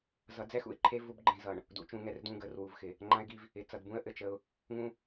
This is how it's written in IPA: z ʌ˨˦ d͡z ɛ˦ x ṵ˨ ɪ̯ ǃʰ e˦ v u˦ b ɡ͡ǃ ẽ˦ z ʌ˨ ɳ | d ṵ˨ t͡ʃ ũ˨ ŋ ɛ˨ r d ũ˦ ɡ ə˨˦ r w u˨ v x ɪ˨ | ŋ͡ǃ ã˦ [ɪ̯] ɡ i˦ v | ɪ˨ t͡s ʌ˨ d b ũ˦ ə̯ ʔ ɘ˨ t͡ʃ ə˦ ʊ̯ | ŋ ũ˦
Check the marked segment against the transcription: correct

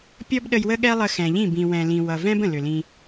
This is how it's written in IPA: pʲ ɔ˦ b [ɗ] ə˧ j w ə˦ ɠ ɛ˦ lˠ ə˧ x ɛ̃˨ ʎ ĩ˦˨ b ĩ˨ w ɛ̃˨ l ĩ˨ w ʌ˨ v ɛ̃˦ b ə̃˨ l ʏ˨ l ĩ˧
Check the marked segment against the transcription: correct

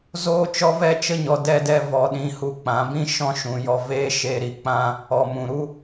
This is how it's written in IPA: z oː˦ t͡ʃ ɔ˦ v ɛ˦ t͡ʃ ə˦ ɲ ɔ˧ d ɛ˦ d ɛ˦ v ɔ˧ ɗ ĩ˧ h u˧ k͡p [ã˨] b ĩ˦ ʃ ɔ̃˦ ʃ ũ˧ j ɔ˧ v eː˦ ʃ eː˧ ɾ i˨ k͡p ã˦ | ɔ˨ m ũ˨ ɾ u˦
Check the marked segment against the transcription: incorrect: ã˨˦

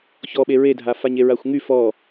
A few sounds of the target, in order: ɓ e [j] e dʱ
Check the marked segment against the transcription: incorrect: ɹ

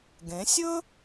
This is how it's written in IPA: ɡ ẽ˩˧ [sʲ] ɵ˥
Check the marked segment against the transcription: correct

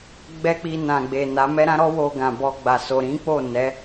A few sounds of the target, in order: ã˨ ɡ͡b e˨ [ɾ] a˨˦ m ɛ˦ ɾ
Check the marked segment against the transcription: incorrect: n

